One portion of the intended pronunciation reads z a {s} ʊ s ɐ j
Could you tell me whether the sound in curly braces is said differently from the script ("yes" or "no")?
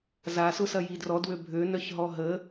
no